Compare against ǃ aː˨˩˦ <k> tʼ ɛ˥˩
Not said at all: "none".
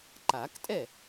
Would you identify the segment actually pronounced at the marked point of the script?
k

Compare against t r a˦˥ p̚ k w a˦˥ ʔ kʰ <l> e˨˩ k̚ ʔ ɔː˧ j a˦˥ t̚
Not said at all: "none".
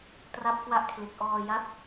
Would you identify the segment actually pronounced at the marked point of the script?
l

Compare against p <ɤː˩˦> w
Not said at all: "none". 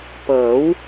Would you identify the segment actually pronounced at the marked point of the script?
ɤː˩˦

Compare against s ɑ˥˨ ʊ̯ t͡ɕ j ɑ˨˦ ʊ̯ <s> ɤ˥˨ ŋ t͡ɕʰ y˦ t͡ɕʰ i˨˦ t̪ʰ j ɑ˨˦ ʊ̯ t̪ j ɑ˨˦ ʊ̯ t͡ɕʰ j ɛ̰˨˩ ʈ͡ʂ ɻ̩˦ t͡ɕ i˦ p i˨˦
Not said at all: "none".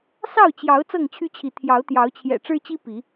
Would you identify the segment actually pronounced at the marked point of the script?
t͡s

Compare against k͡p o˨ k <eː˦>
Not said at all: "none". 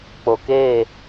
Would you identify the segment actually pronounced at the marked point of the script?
eː˦˨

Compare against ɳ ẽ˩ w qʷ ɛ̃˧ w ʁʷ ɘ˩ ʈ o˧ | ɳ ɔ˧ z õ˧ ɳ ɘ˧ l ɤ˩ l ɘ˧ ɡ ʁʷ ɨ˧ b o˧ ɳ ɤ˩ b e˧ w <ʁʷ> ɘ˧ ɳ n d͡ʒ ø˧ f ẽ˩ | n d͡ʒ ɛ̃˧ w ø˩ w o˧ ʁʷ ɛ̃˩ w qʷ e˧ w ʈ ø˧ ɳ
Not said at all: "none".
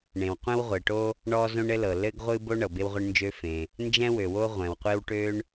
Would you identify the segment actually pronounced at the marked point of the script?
ʁʷ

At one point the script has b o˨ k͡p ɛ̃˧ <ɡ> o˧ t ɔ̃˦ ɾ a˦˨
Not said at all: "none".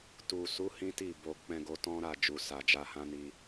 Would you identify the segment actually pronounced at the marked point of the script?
ɡ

